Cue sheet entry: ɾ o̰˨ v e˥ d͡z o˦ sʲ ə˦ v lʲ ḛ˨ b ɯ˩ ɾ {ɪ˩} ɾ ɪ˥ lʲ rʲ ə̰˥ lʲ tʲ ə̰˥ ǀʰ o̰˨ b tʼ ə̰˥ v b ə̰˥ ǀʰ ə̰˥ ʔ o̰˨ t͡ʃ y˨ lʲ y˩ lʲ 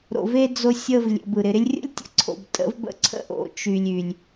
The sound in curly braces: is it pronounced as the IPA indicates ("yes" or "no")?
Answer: no